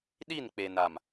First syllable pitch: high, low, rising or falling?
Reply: falling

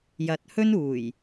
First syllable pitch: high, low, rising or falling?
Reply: low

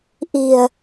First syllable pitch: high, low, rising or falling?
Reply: low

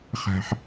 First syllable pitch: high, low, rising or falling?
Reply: low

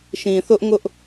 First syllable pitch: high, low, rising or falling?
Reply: low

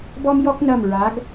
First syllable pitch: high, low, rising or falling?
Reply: high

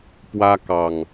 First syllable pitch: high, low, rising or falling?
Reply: high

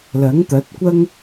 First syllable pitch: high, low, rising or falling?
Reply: rising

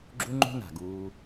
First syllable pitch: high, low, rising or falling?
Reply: high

